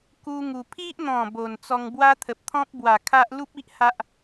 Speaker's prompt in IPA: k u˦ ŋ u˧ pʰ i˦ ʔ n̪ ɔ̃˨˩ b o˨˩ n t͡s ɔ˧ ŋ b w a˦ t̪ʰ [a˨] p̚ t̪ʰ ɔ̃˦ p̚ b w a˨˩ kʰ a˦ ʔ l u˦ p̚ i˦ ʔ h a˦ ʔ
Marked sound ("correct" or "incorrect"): incorrect